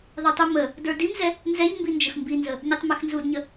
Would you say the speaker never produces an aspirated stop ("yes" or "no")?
yes